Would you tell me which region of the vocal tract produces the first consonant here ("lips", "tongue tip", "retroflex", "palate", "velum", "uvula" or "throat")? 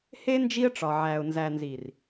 throat